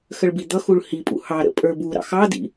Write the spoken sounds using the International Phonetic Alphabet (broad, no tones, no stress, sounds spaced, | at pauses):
x ə ɭ b i d̪ ʌ x u ɭ h i pʼ ṵ h ɑ ɾ ə̰ pʼ ə˞ b u ɾ ɑ̰ x ɑ d ḭ